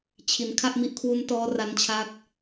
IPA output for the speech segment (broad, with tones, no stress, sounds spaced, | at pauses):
t͡ɕʰ i˨˩ n kʰ a˥˩ ʔ m i˦˥ ʔ kʰ w u˦˥ n t ɔː˦˥ r a˧ n t͡ɕʰ a˦˥ k̚